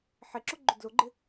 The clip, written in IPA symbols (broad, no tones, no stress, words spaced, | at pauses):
ħɪǁʊ ɡ͡ǃʊdlʊɡ͡ǃɪ